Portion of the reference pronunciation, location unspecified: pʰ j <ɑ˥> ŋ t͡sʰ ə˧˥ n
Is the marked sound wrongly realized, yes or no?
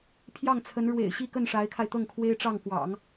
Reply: yes